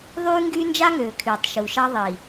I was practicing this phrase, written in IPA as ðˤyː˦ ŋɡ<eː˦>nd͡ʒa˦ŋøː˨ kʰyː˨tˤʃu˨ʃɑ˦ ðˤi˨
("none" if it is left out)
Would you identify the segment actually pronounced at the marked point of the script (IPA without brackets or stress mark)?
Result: yː˦